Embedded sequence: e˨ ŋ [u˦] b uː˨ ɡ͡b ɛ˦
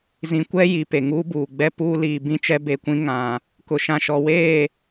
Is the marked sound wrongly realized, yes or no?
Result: yes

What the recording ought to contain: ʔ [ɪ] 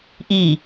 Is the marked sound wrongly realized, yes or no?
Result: yes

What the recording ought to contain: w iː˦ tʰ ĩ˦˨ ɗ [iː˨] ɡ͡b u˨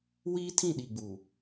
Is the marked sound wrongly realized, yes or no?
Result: yes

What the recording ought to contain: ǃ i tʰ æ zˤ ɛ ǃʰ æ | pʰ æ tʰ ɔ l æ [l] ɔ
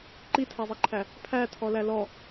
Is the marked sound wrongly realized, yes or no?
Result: no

